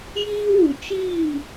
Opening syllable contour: high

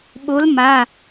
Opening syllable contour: rising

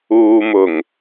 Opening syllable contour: low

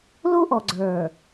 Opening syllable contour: high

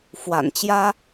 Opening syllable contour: low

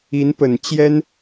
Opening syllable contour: rising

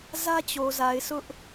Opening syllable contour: high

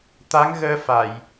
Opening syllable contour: rising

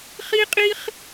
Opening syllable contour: high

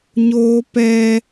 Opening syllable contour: high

